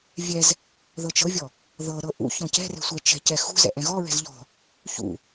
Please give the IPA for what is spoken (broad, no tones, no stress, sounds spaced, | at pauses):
vʲ ɛ z | ð ɤ t͡ʃ ɤ vʲ ɔ | ð ɤ ɾ ɤ ʔ ṵ ç ɔ̃ c ɛ̤ r ɛ̤ sʷ ɛ t͡ʃ ɛ̤ c ɛ x ṳ z ɛ̰ ʔ ɛ̃ ɣ ɔ ɹ ɛ̤ z ʎ ɔ̤ | ç ṵ